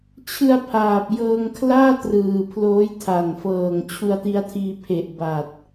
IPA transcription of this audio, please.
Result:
t͡ɕʰ ɯ˧ a̯ pʰ aː˨˩ p̚ j ɤː˧ ŋ kʰ l aː˥˩ t r ɯː˨˩ pʰ l oː˦˥ j tʰ a˨˩ n f ɤː˨˩ ŋ t͡ɕʰ u˧ a̯ t i˦˥ a̯ tʰ iː˧ pʰ e˨˩ ʔ b a˨˩ t̚

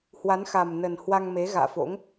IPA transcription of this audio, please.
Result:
h w a˨˦ n x a˨˩ m n ə˨˩ n h w a˧ ŋ m e˨˦ ɣ a̰ː˧˨ f o̰˧˥ ŋ

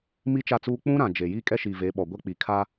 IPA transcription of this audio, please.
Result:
m i˦ t͡ʃ a˦˨ t͡s uː˦ k͡p ũ˦ ɾ ã˨ d͡ʒ e˨ j iː˦ kʼ ɛ˦ ʃ iː˨ v e˨˦ ɓ ɔ˨ ɡʷ ɛ˦ k͡p i˨ kʰ a˦

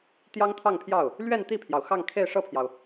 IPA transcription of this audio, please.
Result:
t̪ j ɑ˥ ŋ t̪ʰ ɑ˥˧ ŋ pʰ j ɑ˥˩ ʊ̯ | l ɥ ɛ˥˧ n t̪ i˥˩ pʰ j ɑ˩ ʊ̯ x ɑ˥˧ ŋ kʰ e˥˧ ɪ̯ ʂ ɤ˥˩ pʰ j ɑ˩ ʊ̯

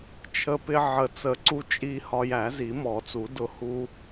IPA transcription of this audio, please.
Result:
t͡ʃʰ ə˧ p ɪ˧ ʕ ə˨˩˦ t͡s ə˨˩˦ ǀ u˧ t͡ʃʼ i˧ h ɒ˧ j æ˨˩˦ z i˨˩˦ m ɔ˨˩˦ t͡s u˨˩˦ d ʊ˧ h u˧

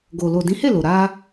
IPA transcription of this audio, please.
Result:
ɡ o˨ l o˨ d ĩ˨˦ h e˦˨ l o˨ ɾ a˧

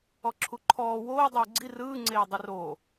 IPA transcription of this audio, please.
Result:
ɔ ǁʰ u ǃʰ ɔː w oː dˤ ɯː ɡ͡ǀ i r ɯː ŋ͡ǀ eː dˤ ɯ r oː

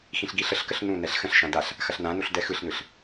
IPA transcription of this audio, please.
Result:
x ĩ ɬ ɡ i ɬ ə ɬ k ə ɬ n ũ n ɛ ɬ x ə̃ ɬ ʃ ã d a ɬ | x ɐ ɬ n ã n u ɬ d ɛ x ɯ ɬ n ɯ ɬ

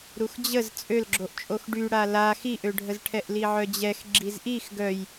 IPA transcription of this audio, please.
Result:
ɾ u x d͡ʑ ə z t͡sʼ ø l ɡ͡ǁ o ʔ t͡ʃʼ o x ɖ y ɽ a l a x i ʔ ø ɖʱ ə z ʈʰ ɛ ʔ l i ʕ œ d͡ʑ ɛ x ɡ͡ǁ i z ʔ i x ɡ œ j

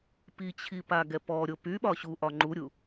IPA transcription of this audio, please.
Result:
p i t͡ɕʰ i p a ɡ ɛ p ɔ ɾʲ o p y ɓ ɒ ɕ u ʔ ɒ ŋ͡ǃ u ɾʲ u

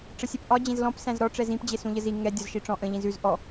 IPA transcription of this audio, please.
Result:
ʈ͡ʂ ə sʲ ɛ p ʔ ɒ d͡ʑ ẽ z l ɔ̃ p s æ̃ z ɾ ɔ ʈ͡ʂ ɛ z ĩ p d͡ʑ e s ũ ʎ ə z i ŋ ɛ dʲ ɒ z ʃ i ʈ͡ʂ ɔ̃ ʔ ə̃ ʎ ĩ z ʉ z ʔ ɔ

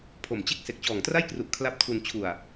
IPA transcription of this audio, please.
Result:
pʰ o˨˩ m t͡ɕ e˥˩ k̚ s e˨˩ k̚ t͡ɕ ɔː˨˩ ŋ t r a˥˩ j k r u˨˩ ʔ kʰ l a˦˥ p̚ tʰ u˧ n t͡ɕʰ u˨˩ a̯

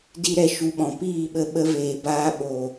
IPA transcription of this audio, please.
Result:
d i˦ ɾ ɛ˧ ʃ u˧ ɓ ɔ̃˨ p iː˦˨ ɓ ə˧ ɓ ə˧ v eː˨ b aː˧ ɓ o˨

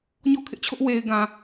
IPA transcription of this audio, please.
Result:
ɲ ɔ˦˨ kʰ ɪ˦ ʔ t͡ɕʰ ʊ˦ ʔ w e˨ ɪ̯ ɡ ã˨

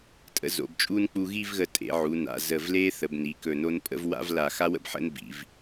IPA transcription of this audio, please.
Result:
tʼ ə̰˧ z o̰˩˧ b t͡ʃʼ uː˥ n k͡p u˧ ɣ i˥˧ v ɣ ə˧˩ tʼ ḛ˩˧ ʕ u˩˧ n a̰˩˧ z əː˧˩ v l eː˥ θ ə˩˧ b n i˩˧ k ɵ˧˩ n o˥ n pʼ ə̰˥˧ v w a̰˥ v l a˧˩ x a˥ w ə̰˥ b ħ ə̰˥ n b ḭ˩˧ v

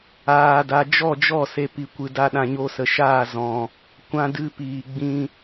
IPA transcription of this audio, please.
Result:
aː˨ d a˨ d͡ʒ ɔ˦˨ d͡ʒ ɔ˦˨ s e˧ p i˨ kʷ ɨ˨ d a˧ ɗ ã˨ ɲ o˧ s ə˨ ʃ aː˦˨ z ɔ̃˨ | kʷ ã˦ d ɨ˧ p iː˨ ɡ͡b ĩ˧

